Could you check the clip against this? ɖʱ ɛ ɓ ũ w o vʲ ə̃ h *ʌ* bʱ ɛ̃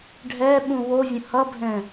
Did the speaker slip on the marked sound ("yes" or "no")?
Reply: no